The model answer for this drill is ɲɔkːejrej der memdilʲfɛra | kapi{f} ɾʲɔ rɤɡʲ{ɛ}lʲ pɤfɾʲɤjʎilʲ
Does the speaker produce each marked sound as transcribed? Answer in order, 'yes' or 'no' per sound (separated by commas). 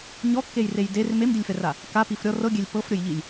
yes, yes